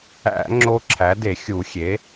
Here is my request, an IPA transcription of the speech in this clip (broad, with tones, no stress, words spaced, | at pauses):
æ̰˧˩˧ ŋ͡ǁo˦ǁʰæ˩˥de˧˩˧ xʲu˧˩˧xʲe˩˥